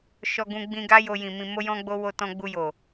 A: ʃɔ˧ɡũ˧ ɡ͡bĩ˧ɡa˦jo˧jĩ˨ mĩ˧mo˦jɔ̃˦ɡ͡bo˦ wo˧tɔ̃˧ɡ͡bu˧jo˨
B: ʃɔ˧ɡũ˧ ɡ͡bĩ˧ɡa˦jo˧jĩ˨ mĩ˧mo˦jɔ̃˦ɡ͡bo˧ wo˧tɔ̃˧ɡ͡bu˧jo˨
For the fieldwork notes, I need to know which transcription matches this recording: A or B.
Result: A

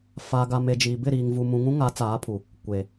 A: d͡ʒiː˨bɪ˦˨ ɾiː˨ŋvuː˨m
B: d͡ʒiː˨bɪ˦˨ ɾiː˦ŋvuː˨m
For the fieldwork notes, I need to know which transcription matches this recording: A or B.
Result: A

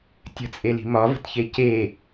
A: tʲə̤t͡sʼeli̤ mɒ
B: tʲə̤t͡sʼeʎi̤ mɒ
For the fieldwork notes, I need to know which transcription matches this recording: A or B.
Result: A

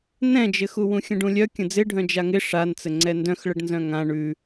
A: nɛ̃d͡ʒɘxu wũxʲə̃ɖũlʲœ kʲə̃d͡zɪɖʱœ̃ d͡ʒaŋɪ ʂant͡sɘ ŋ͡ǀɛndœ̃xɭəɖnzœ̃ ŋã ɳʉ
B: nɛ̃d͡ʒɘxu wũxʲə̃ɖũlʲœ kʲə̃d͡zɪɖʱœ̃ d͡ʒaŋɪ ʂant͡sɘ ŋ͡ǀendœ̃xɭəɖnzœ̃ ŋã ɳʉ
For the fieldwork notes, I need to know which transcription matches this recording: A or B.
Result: A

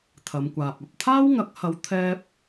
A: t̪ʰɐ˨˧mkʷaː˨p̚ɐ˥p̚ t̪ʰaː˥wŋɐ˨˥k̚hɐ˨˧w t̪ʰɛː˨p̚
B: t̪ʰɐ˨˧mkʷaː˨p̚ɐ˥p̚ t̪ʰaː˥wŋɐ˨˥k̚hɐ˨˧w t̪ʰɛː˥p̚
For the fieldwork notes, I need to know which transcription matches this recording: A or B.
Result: B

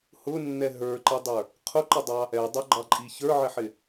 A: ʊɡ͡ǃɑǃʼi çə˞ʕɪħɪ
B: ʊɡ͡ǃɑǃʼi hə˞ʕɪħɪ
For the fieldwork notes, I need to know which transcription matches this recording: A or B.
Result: A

